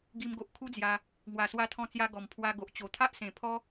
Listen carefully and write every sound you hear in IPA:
ɡ i˧ m ɡ o˨ ʔ kʰ u˦ d͡z j a˧ | ŋ w a˨˩ s w a˧ t̪ʰ ɔ̃˧ t͡s j a˧ ɡ ɔ˨˩ m pʰ w a˧ ɡ o˨ ʔ t͡ɕ o˨˩ t̪ʰ a˦ ʔ s ẽ˨˩ pʰ ɔ˦

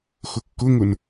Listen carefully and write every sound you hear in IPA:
x ʊ kː ʊ ŋ ʊ n

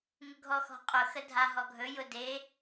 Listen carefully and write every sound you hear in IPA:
ŋ ʊ ɡʱ ɔ x ɔ̤ qʼ ʊ x ə dʱ a ɦ ɔ ɡʱ ɵ j ʊ d e

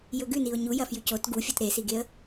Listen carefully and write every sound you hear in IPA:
j ɵ ɡ ʉ n i ʊ̯ ɲ u j ɐ f j ʉ c o t ɡ u fʲ o t ɾ e s i ɡ e ə̯

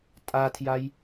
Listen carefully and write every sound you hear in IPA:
tʼ a tʰ j a j

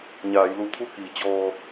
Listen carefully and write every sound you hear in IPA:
ɲ aː˩˧ j l u˧ t̪ʰ u˥˨ k iː˩˧ t͡ɕ ɔː˧

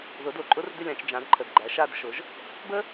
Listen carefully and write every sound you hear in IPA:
ð ʊ˨˥ d o˨˩ ǃʼ ʊ˦˥ r d ʏ˥˨ lʲ ã˥˨ t͡ʃ d͡ʒ ã˨˥ d ǃʰ ə˨˩ d ɡ͡ǃ æ˨˥ ʃ a˥˨ d ʃ ʊ˨˥ ʒ | b ə˦˥

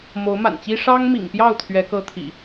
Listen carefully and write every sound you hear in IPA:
m o˨˦ ʊ̯ m a̰˨˩ n t͡ɕ i˦ ʂ ɑ˦ ŋ m ḭ˨˩ ŋ p j ɑ˥˨ ʊ̯ t̪ʰ ɥ ɛ˨˦ k ɤ˦ t̪ʰ ḭ˨˩

